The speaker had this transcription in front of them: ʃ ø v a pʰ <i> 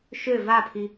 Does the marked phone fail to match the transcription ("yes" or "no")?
no